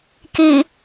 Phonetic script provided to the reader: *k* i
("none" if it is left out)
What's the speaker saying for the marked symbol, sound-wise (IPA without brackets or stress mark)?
k